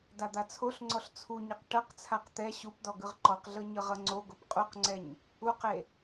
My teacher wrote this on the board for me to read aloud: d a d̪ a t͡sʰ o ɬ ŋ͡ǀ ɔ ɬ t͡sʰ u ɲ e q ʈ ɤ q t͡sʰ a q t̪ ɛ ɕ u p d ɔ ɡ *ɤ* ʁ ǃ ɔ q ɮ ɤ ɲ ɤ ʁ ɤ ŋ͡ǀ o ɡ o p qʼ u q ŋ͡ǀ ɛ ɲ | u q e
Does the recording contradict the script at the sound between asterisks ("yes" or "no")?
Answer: yes